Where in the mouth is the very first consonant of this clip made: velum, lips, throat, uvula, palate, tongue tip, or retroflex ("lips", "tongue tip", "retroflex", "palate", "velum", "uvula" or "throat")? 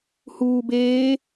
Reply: throat